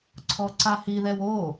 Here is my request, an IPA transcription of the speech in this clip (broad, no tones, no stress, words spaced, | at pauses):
ǀʰɔǀahi ðɛwo